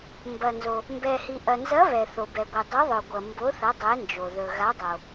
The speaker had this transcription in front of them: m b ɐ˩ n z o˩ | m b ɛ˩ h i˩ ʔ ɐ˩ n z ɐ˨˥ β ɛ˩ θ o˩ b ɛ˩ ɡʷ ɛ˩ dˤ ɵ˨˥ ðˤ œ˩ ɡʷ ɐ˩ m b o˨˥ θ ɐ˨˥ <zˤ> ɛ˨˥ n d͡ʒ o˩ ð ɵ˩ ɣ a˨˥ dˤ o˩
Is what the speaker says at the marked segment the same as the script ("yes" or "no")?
no